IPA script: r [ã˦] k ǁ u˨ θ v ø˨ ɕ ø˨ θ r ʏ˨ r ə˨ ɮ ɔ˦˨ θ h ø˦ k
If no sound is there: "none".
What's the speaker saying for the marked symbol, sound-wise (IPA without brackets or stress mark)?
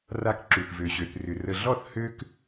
a˦